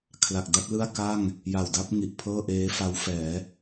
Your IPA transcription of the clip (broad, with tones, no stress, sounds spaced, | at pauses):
kʰ l a˨˩ k̚ d a˥˩ t̚ l ɯ˥˩ a̯ k a˥˩ ŋ | j a˨˩ w d a˥˩ p̚ ŋ i˨˩ ʔ pʰ ɤː˥˩ ʔ eː˦˥ f a˦˥ w f ɛː˩˦